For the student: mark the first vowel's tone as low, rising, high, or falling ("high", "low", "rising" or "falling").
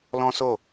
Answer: high